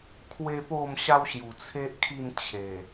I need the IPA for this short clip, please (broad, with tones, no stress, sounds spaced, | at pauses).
kʰ w e˦ p o˥˧ m ɕ a˦ w ɕ j u˨˩ t͡sʰ e˦ ʔ kʰ i˥˧ n t͡ɕʰ e˨˩